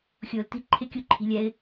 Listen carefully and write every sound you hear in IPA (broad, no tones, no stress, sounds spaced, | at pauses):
xʲ ʊː l t i̤ ǃʰ ɪ kʲ u ǃʰ i̤ lʲ ɛ ɪ̯